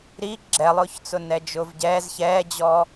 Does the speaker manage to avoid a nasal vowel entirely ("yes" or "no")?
yes